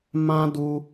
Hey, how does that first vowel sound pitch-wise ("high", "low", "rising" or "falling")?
high